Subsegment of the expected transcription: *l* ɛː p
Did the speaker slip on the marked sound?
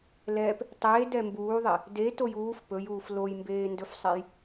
no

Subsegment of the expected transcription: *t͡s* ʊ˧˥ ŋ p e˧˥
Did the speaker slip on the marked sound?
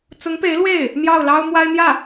no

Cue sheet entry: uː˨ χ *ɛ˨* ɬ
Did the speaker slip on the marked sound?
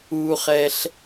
no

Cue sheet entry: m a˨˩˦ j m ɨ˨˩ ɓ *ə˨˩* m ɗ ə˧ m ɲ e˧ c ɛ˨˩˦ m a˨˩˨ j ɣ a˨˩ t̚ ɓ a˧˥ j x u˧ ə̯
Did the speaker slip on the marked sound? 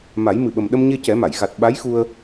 no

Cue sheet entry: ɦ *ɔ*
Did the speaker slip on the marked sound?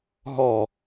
no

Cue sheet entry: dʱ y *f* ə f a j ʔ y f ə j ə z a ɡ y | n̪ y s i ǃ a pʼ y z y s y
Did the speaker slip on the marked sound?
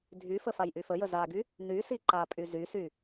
no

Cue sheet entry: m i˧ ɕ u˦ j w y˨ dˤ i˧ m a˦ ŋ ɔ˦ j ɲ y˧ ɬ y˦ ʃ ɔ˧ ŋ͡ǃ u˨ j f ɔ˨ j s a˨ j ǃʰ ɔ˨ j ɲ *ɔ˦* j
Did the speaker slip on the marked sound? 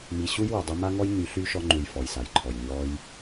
yes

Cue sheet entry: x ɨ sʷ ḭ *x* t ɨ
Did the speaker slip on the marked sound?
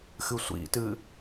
yes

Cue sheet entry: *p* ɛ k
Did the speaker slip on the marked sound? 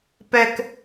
no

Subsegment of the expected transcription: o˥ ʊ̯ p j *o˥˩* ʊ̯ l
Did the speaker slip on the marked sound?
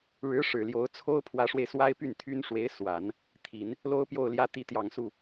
no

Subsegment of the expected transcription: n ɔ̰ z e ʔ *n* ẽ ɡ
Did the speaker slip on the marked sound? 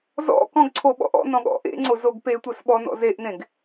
no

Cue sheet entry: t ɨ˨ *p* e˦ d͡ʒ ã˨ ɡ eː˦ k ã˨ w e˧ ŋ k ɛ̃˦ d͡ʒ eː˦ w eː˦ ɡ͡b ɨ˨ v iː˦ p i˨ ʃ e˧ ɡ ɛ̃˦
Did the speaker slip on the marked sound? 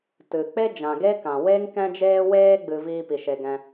yes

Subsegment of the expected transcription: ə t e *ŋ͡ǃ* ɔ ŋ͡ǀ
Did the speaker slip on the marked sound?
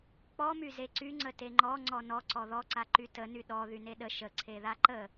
no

